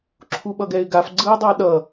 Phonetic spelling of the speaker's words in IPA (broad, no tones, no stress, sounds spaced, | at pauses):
ǁʰ u ɓ ʌ ɡ ɛ ɪ̯ ɡ a f ɡ͡ǀ ɯ ɪ̯ dˤ a ɗ ʌ